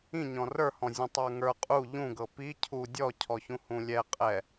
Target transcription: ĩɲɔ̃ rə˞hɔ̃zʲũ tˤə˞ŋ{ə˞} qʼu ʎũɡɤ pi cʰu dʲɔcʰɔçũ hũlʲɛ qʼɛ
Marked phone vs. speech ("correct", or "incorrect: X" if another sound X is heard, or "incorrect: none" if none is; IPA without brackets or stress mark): correct